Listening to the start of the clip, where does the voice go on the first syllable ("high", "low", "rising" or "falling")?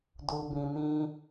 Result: low